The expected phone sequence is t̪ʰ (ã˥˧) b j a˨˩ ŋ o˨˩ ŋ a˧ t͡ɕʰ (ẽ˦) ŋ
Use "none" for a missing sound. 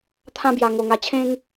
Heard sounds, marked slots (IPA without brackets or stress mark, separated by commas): ã˥˧, ẽ˦